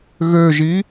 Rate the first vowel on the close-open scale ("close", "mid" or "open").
mid